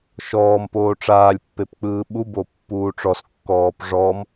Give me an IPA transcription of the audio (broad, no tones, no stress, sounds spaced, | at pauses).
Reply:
ʃ ɔː m p oː ʈ͡ʂ aː lʲ pː e p k͡p ɯː ɓ u b o pː uː ʈ͡ʂ ɔ s kː ɔː p ʐ ɔ m